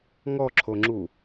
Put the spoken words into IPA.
ŋɔǁʰoŋ͡ǁu

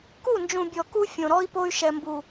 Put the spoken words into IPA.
ku˦˨nd͡ʒũ˨bʲɔ˨ ku˦ fʲõ˨ ɾɔ˦i̯po˦y̯ ʃɛ˨mbu˨

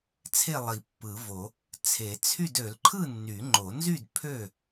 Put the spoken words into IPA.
t͡sʰe˥˨lˠi˨˩˦pːɯ˨˩˦vo˨˩˦ | t͡sʰe˨˩˦t͡sʰy˥˨d ø˨˩˦lǃʰɯ˥˨ nːy˨˩˦ŋ͡ǃo˨˩˦nzy˥˨d pʰø˥˨

